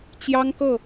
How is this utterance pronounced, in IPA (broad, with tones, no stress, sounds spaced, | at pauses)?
t͡ɕ j ɑ˥ ŋ k ɤ˥˩